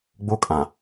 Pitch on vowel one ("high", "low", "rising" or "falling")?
high